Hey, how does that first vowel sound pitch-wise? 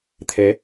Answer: rising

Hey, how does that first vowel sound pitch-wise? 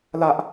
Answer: high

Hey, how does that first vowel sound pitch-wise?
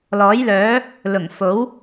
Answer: rising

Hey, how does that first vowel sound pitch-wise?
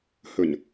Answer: low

